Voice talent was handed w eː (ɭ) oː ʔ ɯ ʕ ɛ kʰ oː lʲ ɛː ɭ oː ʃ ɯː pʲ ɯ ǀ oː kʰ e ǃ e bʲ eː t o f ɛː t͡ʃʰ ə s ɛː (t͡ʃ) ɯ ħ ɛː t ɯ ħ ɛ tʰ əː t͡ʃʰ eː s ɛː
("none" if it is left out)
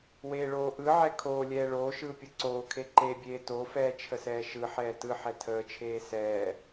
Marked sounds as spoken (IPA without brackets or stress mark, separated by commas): ɭ, ʃ